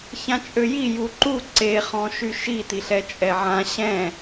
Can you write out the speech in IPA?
ç ã t͡ʃʼ ø j i j u ǃ u ǀ e χ ɔ̃ ʃ y ʃ i t i ɬ ɛ t͡ʃʼ ɛ ʕ ã ɕ ɛ̃

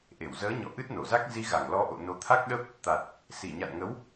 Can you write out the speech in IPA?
ʔ e˧˩ w z əː˨˦ ɲ ɔ̰˧˨ ʔ ɨ˦˥ t̚ n o˧˩ z a˦˥ k̚ z i˨˦ ɣ a˧˩ ŋ l ɔ˨˦ ʔ o̰˧˨ n o˨˦ t̪ʰ a˦˥ k̚ ɗ ə˦˥ p̚ | t̪ a˨˩ t̚ | s i˧˩ ɲ a̰˧˨ n ŋ ə˨˦ w

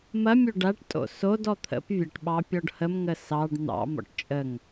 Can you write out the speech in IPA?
m ɐ mʲ o ɖ a ʈ tʼ o̰ s o d ɔ t̪ʰ ə̰ p vʲ ə ʈ ɓ ɑ pʲ ɔ ɖ h ə m ŋ ə s ɑ ɖ n̪ ɑ̰ m ɔ̰ ʈ t͡ʃʼ ə ŋ

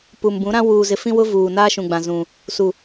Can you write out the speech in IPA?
p u˨ m b ũ˨˦ ɾ ã˦ w uː˨ z ɪ˨ f ĩ˦ w ʊ˦ v uː˨ n aː˦ ʃ ũ˨ ɡ͡b ã˨ z ũ˨ | s u˨

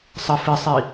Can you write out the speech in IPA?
sˤ ə f ɪ sˤ i

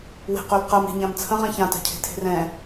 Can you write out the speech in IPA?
w e̤ q ɵ l q ɜ m e̤ ɲ ã m t͡sʰ ə̃ ʁ ɛ̃ ç ã t a̤ cʰ e̤ tʰ e̤ r ɛ̃

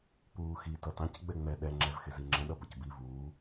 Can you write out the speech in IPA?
p uː x i t ʌ t ɑ̃ c ɡ͡b ɛ ŋ͡m ɛ ɗ ɛ ŋ͡ǁ ɛ v x ɪ z i ŋ͡ǁ ə̃ ɗ ʌ b ʌ c b i v uː

